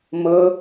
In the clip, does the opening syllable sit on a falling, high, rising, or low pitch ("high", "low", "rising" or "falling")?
high